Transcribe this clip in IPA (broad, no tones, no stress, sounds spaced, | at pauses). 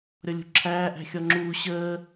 ɾʲ ɔ lʲ ṳ ǁʰ æː ʔ æ̤ xʲ ɔ ŋ͡ǁ uː ɕ əː